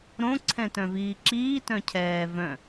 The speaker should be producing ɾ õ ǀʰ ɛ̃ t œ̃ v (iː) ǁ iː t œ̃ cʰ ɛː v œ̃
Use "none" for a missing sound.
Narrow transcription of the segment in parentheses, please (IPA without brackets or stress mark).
iː